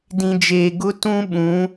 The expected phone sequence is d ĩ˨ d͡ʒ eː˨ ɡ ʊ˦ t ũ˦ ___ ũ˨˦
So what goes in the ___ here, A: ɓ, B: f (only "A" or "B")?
A